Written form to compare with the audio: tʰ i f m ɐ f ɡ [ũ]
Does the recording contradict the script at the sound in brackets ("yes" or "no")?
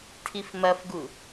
yes